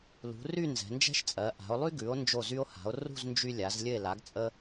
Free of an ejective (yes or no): no